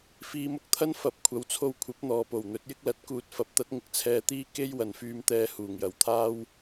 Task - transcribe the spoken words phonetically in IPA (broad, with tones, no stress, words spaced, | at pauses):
fiː˨˧mʊ˧k̚t̪ʰɐ˥n fɐ˨˥p̚kʷʰɐ˨˥wt͡sʰo˧wkʷʰɐ˨˥p̚ n̪ɔː˨po˨˩wn̪ɵ˨˥t̚jɪ˥k̚ lɐ˨˥t̚ kuː˨t̚fɐ˨˥p̚t̪ɐ˨˥t̚ŋɪ˨˥k̚ t͡sʰɛː˧t̪iː˥ ke˥j wɐ˨nfyː˧mt̪ɛː˧ huː˨˩ŋjɐ˨˥wt̪ʰaː˥w